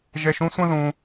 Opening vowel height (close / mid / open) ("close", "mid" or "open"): mid